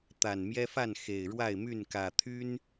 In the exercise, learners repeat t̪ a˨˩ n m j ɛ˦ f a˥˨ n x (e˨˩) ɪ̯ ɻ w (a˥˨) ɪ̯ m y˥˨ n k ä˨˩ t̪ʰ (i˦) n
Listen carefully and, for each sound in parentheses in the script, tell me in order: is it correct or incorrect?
correct, correct, incorrect: y˦

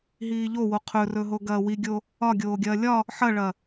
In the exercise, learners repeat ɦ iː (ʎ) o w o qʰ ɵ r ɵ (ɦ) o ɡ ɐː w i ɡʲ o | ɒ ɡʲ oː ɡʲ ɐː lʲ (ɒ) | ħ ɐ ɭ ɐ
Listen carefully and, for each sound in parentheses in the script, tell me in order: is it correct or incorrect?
correct, correct, correct

